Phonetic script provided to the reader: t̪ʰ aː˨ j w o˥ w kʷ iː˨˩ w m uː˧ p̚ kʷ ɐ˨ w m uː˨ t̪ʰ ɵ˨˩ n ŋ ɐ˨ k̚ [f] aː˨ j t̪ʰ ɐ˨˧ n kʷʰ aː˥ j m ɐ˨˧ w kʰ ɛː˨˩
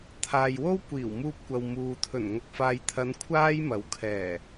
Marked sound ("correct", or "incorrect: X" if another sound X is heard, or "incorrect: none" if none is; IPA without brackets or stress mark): correct